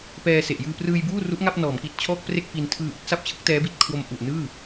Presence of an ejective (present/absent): absent